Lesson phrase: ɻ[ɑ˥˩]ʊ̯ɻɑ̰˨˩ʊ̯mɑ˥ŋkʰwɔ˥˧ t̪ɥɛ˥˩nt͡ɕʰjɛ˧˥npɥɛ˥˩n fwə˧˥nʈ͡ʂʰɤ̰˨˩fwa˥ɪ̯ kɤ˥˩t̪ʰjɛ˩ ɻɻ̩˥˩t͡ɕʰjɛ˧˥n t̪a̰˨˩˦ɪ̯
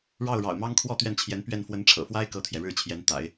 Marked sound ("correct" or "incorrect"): correct